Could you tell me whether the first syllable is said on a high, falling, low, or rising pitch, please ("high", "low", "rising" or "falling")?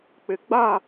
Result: low